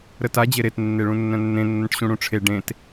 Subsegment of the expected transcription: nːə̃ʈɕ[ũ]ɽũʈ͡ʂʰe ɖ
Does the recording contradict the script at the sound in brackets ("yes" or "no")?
no